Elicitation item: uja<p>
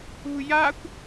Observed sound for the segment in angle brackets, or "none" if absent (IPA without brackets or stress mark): kʷ